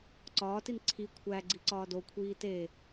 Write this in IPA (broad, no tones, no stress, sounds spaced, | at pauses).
ǀ ɒː t i n ǀʰ i kʷʰ æ ɡ͡ǀ i ǀ ɒː d o kʷʰ iː t e